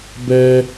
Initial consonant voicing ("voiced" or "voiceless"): voiced